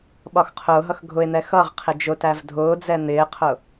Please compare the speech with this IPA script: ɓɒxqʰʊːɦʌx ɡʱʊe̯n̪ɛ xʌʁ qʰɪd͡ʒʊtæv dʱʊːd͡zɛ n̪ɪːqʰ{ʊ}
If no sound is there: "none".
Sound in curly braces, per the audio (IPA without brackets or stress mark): ʊ